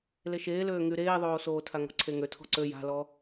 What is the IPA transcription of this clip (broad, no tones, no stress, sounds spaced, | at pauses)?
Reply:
l e ʃ eː l øː ŋ y ɾ eː ðˤ oː s oː tʰ a ŋ ɔ̤ ǀʰ e ŋ ø tʰ ɔ̤ ǀ ø j a̤ l ɔ